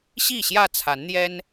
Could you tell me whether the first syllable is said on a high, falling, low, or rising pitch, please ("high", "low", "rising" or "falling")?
falling